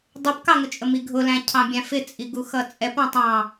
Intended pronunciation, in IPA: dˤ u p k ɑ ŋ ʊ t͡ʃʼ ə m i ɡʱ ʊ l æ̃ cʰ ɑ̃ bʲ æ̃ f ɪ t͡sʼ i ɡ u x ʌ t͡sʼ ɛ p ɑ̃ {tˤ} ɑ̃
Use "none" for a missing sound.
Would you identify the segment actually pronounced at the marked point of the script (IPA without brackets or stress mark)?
tˤ